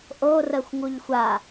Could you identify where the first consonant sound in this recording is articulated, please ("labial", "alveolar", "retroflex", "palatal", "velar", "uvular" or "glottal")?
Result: glottal